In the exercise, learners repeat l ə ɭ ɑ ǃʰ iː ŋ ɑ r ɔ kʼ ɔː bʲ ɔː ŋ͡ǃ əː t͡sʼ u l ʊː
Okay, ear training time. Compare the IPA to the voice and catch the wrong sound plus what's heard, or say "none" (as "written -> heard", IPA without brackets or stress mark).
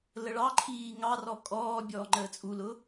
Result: none